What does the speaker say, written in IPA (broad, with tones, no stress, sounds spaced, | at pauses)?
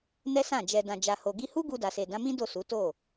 n ɛ˦ s ã˦˨ d͡ʒ ɛ˧ d ã˨ d͡ʒ a˨ h o˨ ɡ i˧ h u˦ ɡ u˧ d a˨ s e˨ d ã˨˦ m ĩ˦ d o˦˨ s u˨˦ t o˦˨